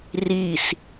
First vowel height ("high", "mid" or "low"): high